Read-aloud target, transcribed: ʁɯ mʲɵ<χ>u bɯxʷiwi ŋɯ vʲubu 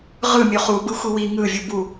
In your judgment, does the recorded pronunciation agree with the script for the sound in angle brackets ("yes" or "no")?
yes